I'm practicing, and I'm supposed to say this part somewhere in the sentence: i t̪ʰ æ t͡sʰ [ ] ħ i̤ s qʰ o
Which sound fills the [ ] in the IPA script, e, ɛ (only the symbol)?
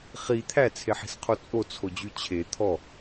e